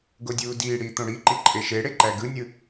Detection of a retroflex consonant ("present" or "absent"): present